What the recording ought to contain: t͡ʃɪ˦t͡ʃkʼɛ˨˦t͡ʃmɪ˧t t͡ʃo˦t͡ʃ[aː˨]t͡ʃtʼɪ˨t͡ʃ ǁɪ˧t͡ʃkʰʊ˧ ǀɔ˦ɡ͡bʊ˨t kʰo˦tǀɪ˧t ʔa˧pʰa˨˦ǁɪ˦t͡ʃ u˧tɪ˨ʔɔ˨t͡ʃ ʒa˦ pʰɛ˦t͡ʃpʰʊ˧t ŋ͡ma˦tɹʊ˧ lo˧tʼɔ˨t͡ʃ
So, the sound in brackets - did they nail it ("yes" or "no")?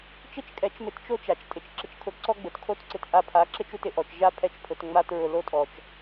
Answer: no